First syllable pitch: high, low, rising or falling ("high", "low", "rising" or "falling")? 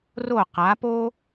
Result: falling